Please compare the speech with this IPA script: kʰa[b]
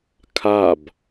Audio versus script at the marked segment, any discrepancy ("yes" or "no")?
no